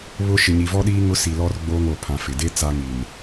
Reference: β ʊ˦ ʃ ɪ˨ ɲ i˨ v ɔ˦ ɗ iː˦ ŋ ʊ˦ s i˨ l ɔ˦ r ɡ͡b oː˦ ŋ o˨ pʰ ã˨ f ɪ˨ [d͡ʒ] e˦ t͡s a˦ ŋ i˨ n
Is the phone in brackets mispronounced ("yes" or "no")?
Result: yes